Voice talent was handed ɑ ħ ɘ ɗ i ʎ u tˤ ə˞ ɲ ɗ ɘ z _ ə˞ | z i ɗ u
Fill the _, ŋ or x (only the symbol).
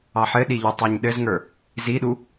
ŋ